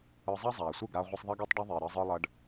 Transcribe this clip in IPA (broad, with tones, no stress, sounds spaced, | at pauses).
ɯ˧ zˤ ɐ˦ zˤ aː˨ sʷ ɨ˦˨ ɡ ɾ a˧ ʁʷ e˧ sˤ ðˤ ɐ˦ ɡ e˦ tˤ ɖ œ˦ ðˤ eː˨ ɾ əː˧ zˤ ɯ˧ lˠ ɐ˧ ɖ